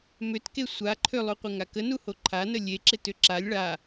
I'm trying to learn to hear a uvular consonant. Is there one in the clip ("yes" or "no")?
yes